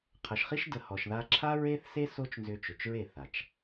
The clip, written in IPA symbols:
qʰə˨ʃ χi˦ʃ də˧ hɔ˨ʃða˧ǁʰa˦ ɹe˦θse˦ so˦t͡ʃnzʏ˧ t͡ʃʏ˨t͡ʃɹe˦˨ θa˨t͡ʃ

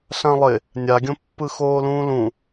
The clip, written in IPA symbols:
ɬãlˠɪ | nʲaɡʲõ pːɯxoːlũːlũ

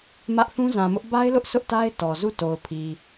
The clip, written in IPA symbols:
mä˦ʔ θũ˦zã˨mʊ˦ʔ ba˦ɪ̯lʊ˦ʔ sʰʊ˦ʔta˦ɪ̯ tɔ˨zu˦˨to˨ʊ̯pʰi˨

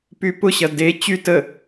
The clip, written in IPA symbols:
pypʊɕɐ de t͡ɕy tə

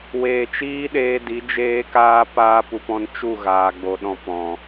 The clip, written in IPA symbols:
weː˨t͡ʃiː˦ɗeː˧di˨˦ d͡ʒeː˦kaː˦paː˦ pu˧pɔ̃˦n t͡ʃu˦˨ɣaː˨ɡ͡bo˨ ɗɔ̃˨ pɔ̃˨

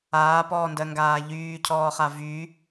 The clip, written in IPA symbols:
aːpɔːndɜŋɡaː ʎyːcʰɔːχa vy

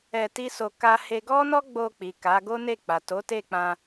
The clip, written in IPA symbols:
ɛ˧ti˦so˧ ka˦he˦ ɡɔ˦nɔ˦ ɡ͡bo˧k͡pi˨ ka˨˦ ɡo˦ne˦˨k͡pa˨ to˨˦te˦˨k͡pã˧

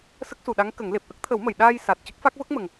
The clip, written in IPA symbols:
sə˦˥k̚su˨˩ɗa˧˥ŋ kə˨˩˦ŋ le˨˩p̚ʔə˦˥k̚t̪ʰə˨˩˦wmə˨˩˨j ɗaː˧jsa˨˩t̚ cə˦˥k̚fa˦˥k̚ və˦˥k̚mə˨˩ŋ

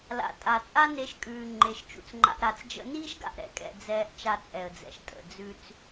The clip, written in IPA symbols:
la̰˩tʼa˩t͡sʼa˥ ne˧ʃkʼʉː˩ ŋ͡ǃe˩ʃt͡ʃṵ˩t͡sŋ͡ǃa̰˧ʔɾa˧t͡s d͡ʒə̰˧niː˥ʃ ɡa̰˩ʔɾɛ̰˥kʼɛ̰˧ d͡zɛː˧ʔ t͡ʃa˧t͡sʼɛ˩ə̯d͡zɛ̰˩ʃ tʼə̰˩d͡zʉ˧t͡s

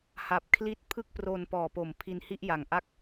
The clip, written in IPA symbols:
ha˨˩p̚kʰli˦˥t̚ pʰɯ˥˩k̚pro˧n pɔː˨˩po˨˩m pʰi˧nhi˥˩ʔja˨˩ŋ ʔa˥˩k̚

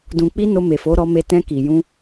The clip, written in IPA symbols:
dũ˨k͡pi˧ no˧ me˨fo˨˦ ɾɔ˧me˧ tɛ̃˧ki˨jũ˧

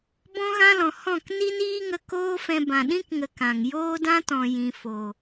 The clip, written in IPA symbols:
bɔ̃˦ɣã˦lɔ̃˨ hɔ̃˦˨k ni˦niː˦ŋə˧ koː˦fɛ̃˧bã˨ ɗĩ˦k ŋə˧kã˨ŋ joː˦dã˦tɔ̃˨ jĩ˨fo˨

